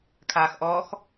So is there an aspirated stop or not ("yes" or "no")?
yes